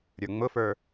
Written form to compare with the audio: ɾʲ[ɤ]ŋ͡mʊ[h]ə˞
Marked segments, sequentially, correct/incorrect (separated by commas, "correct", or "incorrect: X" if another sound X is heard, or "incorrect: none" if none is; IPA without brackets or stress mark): incorrect: ə˞, incorrect: f